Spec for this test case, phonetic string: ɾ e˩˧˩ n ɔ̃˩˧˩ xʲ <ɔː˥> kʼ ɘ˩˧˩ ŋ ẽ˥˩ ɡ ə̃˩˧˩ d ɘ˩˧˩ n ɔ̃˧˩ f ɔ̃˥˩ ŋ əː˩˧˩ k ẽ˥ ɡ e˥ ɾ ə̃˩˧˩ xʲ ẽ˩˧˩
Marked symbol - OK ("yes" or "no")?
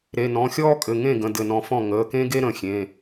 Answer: yes